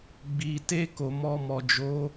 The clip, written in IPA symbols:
ɡ͡bi˨te˧ ko˨mɔ˧mɔ˨ d͡ʒo˨˦

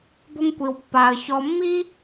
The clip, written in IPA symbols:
bo˥ŋkʷi˧w pːa˧ə̯ çɔ˧mːi˥

